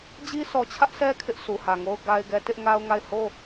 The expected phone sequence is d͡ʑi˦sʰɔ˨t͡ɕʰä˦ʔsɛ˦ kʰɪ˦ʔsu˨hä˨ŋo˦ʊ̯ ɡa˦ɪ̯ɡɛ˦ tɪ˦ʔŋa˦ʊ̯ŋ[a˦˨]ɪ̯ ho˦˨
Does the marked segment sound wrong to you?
no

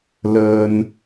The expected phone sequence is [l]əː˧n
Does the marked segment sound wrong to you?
no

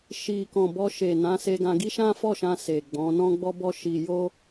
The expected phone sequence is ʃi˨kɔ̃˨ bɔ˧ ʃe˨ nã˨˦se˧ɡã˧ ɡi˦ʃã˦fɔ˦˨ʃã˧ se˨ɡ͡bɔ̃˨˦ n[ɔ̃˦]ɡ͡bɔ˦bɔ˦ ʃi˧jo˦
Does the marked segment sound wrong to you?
no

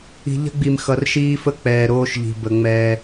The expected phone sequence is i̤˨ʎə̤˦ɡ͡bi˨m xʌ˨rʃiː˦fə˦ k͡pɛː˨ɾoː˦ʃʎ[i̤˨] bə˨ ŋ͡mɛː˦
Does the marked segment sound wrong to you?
no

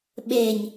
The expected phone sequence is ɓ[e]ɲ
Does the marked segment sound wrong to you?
no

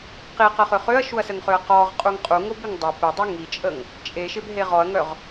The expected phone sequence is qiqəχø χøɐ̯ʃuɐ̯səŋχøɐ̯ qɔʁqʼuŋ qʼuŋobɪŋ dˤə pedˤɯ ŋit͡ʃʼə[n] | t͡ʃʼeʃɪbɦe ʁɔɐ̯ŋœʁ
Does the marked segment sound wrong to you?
yes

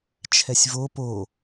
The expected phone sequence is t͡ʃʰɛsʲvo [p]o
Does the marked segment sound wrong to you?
no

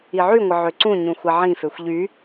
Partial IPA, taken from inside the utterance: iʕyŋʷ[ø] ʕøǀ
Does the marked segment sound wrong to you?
yes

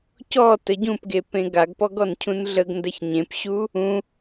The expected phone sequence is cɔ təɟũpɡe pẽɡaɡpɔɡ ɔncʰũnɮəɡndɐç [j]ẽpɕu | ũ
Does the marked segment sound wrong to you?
yes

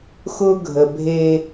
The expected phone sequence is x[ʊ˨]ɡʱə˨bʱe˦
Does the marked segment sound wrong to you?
yes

